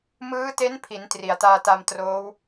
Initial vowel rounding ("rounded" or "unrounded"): unrounded